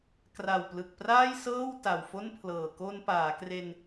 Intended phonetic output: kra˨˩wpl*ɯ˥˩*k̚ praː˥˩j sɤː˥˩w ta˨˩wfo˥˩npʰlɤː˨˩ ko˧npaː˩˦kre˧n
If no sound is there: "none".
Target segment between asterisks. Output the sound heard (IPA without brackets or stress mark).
ɯ˨˩